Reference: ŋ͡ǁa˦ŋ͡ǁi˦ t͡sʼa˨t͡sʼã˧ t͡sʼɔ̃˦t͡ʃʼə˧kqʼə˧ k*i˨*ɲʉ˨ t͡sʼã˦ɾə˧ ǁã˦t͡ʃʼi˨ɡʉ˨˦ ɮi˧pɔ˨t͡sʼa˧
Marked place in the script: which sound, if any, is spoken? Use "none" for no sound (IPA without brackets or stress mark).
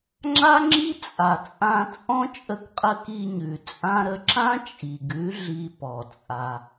i˧